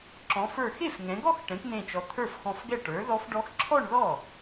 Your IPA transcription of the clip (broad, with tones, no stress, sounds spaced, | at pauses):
ǁ ɔ̃˩˧ f ə˞˧˩ x e˥˩ f ŋ ɛ̃˩˧ ɡ ɔ˥˧ x ʈ ɛ̃˩˥ kʷ n̪ ẽ˧˩ t͡ʃ ɔ˩˧ t̪ʰ ə˞˥˩ f x ɔ̃˧˩ f ɡ ɛ˥˩ ʈ ə˞˩˥ ð ɔ˦˥ f ɖ ɔ˦˥ x ǁʰ ɔ˥˧ ɳ ð ɔ˥˩